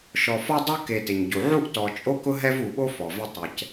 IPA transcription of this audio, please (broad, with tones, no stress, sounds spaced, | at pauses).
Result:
ʃ ɔ˨ f ɔ˥ dˤ u˦ k e˨ t ɪ˩ ɲ ɟ u˩ ʕ u˥ ʔ t ɔ˨ t͡ʃʼ o˥ k ʊ˥ ɦ ɛ˥ v u˨ ɓ o˥ f ɔ˩ v ɪ˦ tˤ ɛ˨ c